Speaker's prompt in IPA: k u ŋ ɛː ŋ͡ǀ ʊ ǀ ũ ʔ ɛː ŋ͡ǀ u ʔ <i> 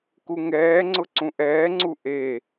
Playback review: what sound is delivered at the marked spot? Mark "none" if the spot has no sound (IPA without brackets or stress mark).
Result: e